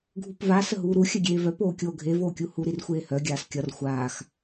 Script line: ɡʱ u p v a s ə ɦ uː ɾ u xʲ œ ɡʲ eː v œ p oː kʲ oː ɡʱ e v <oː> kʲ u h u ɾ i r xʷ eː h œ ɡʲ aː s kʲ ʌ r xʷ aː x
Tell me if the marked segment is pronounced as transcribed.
yes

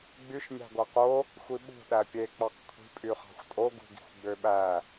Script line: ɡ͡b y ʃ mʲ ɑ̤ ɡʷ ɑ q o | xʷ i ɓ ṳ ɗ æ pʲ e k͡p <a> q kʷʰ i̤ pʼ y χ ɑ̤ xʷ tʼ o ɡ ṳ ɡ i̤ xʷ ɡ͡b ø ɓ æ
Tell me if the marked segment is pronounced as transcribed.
no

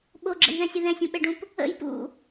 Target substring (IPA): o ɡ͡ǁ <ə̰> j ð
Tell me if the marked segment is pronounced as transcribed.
yes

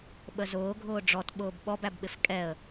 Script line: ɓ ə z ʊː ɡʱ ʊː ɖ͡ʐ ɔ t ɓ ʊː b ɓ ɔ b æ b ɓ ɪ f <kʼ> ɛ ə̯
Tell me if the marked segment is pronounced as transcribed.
yes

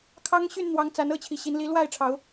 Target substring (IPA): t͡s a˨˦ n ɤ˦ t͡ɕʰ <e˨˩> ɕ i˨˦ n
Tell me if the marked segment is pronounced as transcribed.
no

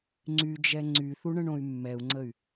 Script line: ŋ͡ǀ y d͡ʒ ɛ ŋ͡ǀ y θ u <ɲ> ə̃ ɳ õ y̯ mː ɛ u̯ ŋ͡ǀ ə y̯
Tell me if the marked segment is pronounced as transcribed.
no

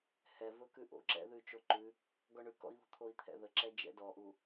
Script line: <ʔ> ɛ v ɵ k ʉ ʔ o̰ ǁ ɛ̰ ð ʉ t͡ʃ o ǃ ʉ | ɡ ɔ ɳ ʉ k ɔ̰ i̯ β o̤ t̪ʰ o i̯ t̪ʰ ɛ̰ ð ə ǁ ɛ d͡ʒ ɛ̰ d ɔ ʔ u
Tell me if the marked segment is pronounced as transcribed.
no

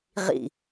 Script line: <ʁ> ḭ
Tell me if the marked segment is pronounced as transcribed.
yes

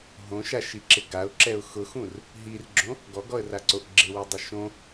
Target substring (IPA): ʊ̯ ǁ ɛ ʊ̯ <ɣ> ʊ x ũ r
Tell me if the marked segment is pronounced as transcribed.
no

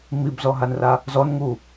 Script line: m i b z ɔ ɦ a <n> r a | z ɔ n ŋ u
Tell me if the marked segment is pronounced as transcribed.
yes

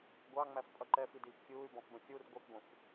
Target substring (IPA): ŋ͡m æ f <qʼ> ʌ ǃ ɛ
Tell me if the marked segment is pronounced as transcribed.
no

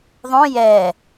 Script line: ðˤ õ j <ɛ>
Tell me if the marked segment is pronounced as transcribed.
yes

